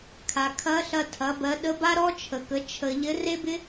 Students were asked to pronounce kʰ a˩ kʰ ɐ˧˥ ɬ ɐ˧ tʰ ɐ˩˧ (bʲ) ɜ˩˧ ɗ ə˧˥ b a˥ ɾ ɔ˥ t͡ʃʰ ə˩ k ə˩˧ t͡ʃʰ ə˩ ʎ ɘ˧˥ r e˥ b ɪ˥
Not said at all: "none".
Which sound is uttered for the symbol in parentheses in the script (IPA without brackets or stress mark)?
b